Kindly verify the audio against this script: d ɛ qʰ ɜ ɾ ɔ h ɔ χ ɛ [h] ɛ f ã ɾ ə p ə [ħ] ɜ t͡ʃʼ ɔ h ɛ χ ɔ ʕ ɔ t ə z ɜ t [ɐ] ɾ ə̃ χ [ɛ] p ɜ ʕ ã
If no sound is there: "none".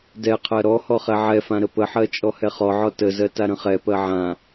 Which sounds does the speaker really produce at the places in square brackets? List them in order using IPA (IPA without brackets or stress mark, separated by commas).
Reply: ʕ, ħ, a, ɛ